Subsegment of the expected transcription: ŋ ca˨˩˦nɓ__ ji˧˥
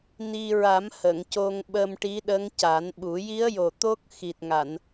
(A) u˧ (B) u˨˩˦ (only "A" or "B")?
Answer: B